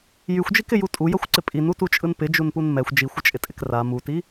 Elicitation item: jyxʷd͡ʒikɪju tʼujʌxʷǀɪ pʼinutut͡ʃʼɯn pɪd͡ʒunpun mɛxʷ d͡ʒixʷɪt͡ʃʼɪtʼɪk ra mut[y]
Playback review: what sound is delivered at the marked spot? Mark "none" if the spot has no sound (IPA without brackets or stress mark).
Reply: i